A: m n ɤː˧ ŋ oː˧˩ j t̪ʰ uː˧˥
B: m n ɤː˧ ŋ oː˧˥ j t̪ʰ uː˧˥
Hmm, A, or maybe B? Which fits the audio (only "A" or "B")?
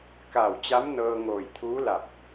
A